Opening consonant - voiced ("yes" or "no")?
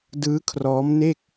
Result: yes